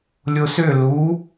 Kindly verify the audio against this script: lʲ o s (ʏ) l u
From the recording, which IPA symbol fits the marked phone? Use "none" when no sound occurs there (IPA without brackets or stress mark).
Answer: ʏ